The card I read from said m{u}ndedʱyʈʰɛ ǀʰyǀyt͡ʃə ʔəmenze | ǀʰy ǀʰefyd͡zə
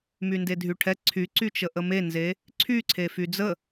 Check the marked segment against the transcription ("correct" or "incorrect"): incorrect